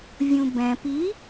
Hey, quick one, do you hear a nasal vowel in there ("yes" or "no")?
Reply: yes